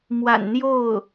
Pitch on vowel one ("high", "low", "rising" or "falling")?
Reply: low